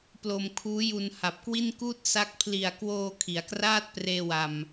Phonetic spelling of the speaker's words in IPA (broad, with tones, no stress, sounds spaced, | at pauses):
p l o˧ m kʰ uː˦˥ j u˧ n h a˨˩ p̚ k w i˥˩ n k uː˥˩ t̚ s a˦˥ k̚ pʰ l i˨˩ a̯ k w oː˧ kʰ i˩˦ a̯ k r aː˥˩ t̚ p r eː˧ w a˨˩ m